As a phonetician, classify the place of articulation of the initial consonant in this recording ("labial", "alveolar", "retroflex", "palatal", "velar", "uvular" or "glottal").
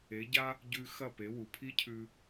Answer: palatal